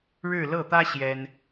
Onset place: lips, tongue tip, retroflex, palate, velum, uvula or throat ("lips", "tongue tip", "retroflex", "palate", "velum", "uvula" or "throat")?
retroflex